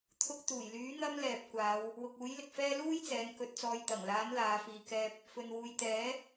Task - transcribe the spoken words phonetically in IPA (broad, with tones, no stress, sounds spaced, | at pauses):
t̪ʰ ʊ˧ k̚ t̪ uː˨˩ j l yː˨˥ n̪ ɐ˥ m l ɛː˨ p̚ kʷ aː˨˧ w | w ʊ˨ k̚ uː˨˥ j l ɪ˨ k̚ f ɛː˥ l uː˥ j t͡s ɛː˨˧ n k ɵ˧ t̚ t͡s ɔː˧ j t̪ ɐ˨˩ ŋ l aː˨˥ n l aː˨˧ f iː˨ k ɛː˧ p̚ | f ɵ˧ n w uː˧ j t̪ ɛː˨˥